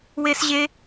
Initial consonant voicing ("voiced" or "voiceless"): voiced